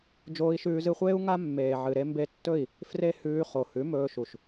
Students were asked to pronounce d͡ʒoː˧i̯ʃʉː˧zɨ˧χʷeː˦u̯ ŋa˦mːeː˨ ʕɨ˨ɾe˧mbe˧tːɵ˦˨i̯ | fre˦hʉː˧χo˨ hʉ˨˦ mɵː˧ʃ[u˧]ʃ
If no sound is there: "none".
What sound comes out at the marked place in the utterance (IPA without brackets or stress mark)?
u˨